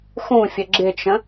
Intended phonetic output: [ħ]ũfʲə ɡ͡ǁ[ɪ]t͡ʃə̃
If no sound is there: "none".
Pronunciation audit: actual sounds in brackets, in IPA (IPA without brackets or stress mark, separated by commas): x, ɪ